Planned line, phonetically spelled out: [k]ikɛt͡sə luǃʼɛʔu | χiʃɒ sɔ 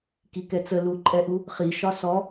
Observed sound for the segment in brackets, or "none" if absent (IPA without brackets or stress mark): k